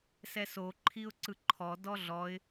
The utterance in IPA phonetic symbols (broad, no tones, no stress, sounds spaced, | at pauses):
s ɛ s o ǃʰ i ʊ̯ ǀ ɯ ǃʰ ɔ d ɔ ɮ ɔ ɪ̯